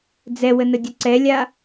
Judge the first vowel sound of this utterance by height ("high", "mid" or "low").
mid